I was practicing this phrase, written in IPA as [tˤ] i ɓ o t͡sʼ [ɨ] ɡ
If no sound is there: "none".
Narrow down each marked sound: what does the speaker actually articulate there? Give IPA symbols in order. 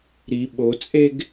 ɾ, e

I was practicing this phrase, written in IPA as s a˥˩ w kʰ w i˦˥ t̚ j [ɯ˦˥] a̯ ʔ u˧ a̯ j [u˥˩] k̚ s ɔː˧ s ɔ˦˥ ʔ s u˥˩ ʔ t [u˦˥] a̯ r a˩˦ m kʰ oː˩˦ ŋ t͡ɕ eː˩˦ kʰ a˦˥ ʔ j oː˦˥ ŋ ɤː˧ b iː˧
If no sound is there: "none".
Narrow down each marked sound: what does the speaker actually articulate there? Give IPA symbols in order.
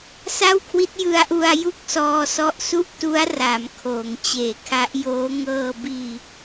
ɯ˧, u˥˩, u˦˥

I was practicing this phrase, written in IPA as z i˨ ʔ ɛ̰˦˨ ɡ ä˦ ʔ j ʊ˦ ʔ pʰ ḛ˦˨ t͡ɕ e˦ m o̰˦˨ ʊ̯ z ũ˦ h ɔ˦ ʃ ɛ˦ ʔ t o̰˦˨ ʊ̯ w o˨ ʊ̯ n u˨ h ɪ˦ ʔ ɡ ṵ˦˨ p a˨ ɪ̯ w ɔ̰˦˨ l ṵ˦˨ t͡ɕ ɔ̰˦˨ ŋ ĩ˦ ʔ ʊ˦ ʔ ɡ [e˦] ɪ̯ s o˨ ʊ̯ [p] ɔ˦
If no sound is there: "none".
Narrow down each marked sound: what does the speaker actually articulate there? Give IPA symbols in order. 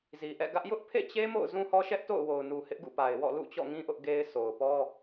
e˦, p

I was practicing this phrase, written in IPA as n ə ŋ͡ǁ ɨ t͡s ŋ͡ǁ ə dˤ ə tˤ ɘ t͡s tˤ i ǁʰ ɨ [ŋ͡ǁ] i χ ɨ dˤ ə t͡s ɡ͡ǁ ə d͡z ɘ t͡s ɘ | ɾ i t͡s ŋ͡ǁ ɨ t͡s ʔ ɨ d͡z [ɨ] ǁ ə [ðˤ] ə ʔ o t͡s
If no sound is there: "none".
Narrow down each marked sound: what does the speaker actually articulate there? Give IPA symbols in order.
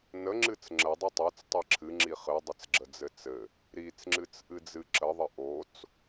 ŋ͡ǁ, ɨ, ðˤ

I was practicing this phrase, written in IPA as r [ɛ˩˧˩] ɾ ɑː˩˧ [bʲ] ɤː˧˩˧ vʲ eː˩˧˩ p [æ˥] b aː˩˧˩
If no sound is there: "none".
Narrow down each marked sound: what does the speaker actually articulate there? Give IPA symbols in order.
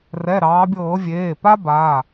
ɛ˩˧˩, bʲ, a˥

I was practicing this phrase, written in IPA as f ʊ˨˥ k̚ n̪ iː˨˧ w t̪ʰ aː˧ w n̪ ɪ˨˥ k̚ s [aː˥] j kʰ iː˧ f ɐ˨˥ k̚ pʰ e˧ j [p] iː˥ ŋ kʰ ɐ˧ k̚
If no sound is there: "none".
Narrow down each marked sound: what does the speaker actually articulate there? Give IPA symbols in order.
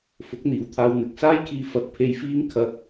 aː˥, f

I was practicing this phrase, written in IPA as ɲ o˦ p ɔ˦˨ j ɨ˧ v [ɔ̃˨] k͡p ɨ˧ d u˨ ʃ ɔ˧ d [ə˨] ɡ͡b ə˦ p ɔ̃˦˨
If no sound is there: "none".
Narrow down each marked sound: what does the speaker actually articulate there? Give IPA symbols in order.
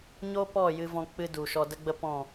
ɔ̃˧, ə˦

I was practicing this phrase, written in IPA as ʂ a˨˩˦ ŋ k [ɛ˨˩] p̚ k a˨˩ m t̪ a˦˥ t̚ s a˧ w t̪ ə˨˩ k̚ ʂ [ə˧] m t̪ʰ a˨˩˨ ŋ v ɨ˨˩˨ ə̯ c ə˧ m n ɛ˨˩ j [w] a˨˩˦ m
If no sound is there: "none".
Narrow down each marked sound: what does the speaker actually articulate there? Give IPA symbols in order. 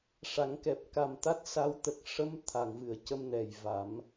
ɛ˨˩, ə˧, v

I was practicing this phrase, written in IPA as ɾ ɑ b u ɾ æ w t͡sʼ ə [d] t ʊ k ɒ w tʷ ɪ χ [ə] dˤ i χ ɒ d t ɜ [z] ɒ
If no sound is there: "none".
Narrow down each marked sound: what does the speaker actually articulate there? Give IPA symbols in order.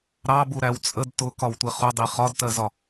d, ʊ, z

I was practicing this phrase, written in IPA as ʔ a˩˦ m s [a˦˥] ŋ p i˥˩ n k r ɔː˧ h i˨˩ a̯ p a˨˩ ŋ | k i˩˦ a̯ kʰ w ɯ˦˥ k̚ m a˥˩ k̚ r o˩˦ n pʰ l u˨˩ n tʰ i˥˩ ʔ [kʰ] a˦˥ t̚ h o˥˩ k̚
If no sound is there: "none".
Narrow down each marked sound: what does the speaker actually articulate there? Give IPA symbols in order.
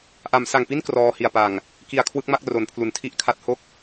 a˨˩, kʰ

